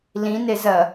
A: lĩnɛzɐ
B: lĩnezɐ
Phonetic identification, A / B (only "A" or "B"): B